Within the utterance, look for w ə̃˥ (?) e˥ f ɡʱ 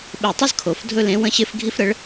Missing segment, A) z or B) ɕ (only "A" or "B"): B